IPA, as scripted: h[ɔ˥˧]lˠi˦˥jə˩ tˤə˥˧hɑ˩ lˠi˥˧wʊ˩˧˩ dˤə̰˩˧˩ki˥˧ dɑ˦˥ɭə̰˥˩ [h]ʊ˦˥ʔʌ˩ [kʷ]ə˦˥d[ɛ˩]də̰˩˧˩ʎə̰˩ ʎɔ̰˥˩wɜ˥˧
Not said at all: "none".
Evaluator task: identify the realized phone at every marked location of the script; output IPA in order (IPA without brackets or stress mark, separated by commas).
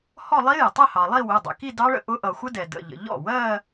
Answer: ɔ˥˧, ʔ, xʷ, ɛ˩